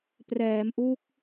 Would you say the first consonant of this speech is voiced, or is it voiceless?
voiceless